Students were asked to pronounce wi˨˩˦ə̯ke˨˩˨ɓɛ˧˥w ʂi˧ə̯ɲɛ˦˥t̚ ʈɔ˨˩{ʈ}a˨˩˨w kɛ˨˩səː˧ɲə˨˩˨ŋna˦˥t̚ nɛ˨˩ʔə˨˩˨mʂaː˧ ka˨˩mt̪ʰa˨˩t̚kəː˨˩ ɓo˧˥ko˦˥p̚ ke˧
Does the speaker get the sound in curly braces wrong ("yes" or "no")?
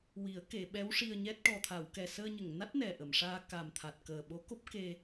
yes